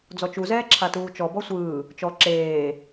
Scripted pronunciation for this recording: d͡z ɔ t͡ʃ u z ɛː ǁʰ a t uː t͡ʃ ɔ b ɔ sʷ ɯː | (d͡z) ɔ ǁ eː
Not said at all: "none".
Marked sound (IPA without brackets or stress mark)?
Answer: t͡ʃ